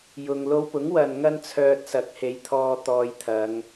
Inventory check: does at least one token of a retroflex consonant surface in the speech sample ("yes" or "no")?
no